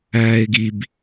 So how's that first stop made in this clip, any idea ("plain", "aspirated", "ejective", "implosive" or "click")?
plain